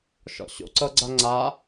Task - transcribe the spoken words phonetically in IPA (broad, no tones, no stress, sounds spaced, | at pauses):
ʃ ɔ̰ ɕ o̰ ǀ ɤ ɡ͡ǀ a ŋ͡ǀ a